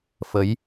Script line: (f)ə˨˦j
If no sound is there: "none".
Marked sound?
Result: f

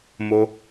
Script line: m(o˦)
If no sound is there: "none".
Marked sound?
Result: o˦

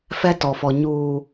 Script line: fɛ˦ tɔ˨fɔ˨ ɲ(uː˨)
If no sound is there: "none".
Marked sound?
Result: uː˨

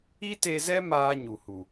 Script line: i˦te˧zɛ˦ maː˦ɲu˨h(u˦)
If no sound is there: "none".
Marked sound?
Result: u˨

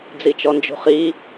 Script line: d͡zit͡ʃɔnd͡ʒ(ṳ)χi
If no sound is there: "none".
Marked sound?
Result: ṳ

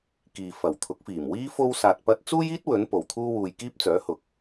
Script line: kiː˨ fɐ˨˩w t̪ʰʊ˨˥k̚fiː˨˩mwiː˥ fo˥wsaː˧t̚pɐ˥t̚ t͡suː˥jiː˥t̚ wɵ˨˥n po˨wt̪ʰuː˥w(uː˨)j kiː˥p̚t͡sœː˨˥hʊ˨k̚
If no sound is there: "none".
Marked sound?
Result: uː˧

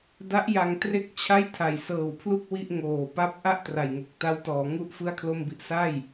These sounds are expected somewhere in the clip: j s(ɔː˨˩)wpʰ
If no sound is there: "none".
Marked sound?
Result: ɤː˨˩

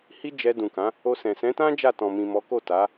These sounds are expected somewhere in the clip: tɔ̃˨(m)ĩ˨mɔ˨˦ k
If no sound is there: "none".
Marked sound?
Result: m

